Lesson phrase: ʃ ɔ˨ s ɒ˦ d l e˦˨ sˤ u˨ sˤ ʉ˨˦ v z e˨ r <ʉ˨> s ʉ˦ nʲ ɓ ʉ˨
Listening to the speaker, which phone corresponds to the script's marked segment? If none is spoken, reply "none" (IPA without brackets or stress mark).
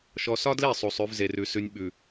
ʉ˨